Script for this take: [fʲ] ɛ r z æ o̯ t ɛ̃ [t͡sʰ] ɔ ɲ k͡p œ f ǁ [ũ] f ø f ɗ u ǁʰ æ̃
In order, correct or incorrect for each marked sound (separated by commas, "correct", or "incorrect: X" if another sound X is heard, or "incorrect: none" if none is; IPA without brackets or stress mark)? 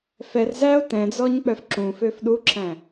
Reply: incorrect: f, incorrect: d͡z, correct